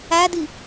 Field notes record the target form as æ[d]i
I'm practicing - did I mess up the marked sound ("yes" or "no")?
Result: no